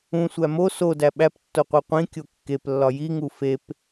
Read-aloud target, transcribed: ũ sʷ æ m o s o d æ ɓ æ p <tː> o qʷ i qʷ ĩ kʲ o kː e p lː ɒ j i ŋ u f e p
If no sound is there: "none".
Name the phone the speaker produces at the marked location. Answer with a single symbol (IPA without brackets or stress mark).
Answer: tː